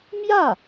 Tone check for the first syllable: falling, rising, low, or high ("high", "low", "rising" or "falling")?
falling